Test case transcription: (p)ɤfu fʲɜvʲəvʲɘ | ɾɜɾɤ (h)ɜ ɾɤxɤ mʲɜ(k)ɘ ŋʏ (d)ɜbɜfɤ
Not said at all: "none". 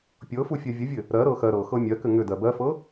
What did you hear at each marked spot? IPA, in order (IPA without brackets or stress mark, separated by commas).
pʲ, x, k, d